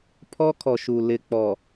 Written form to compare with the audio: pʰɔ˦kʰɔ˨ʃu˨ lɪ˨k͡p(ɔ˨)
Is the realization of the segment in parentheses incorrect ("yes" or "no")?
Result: no